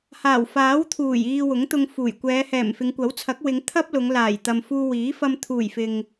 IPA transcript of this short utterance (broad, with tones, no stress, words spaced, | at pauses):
haː˨˩wfaː˨˥wt̪ʰuː˨˩j iː˧wʊ˨˥ŋt̪ʊ˧ŋfuː˨˩j kʷɛː˨˧hɛː˨˩mfɪ˨˧ŋ kʷɐ˨˥wt͡sʰɐ˨˥k̚wɪ˨˧ŋ t̪ʰɐ˥p̚lʊ˨˧ŋ laː˨˩j t̪ɐ˨mfuː˧wiː˨˥ fɐ˧mt̪ʰuː˨˩j fɪ˨ŋ